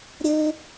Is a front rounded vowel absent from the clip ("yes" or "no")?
yes